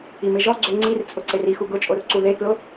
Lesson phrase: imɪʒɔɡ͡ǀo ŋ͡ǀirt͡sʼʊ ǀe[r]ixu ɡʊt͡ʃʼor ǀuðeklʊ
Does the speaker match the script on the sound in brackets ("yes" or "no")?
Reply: yes